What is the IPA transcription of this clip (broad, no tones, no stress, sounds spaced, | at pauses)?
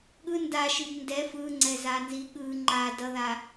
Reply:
ɠ ɯ n d a ʃ i b n d ɛ f ɯ ŋ͡ǀ ɛ z a n z i ɠ ɯ ŋ͡ǃ a d ʌ ð a